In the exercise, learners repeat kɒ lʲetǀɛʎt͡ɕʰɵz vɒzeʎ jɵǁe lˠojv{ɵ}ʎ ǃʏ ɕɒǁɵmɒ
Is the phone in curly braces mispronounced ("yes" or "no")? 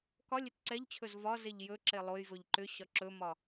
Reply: no